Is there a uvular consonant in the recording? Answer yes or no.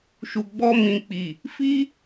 no